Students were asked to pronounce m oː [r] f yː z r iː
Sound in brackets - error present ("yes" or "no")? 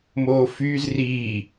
yes